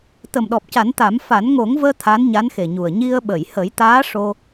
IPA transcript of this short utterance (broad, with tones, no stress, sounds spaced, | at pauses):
t̪ ə˨˩ m ɗ ɔ˨˩ p̚ c a˨˩˦ n t̪ a˨˩˦ m f a˨˩˦ n ŋ o˨˩˦ ŋ v əː˧ t̪ʰ a˧˥ n ɲ a˧˥ n x e˨˩ ɲ u˨˩ ə̯ ɲ i˧ ə̯ ɓ ə˨˩˨ j h ə˨˩˦ j t̪ aː˧˥ ʂ o˧